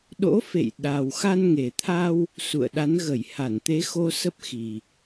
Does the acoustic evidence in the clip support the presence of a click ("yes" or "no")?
no